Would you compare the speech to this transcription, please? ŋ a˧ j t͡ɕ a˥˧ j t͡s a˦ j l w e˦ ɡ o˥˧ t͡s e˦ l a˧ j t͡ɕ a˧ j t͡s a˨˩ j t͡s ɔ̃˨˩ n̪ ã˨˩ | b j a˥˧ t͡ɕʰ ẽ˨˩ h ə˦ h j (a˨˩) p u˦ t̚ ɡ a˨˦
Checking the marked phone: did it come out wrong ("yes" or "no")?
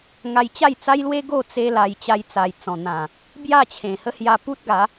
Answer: yes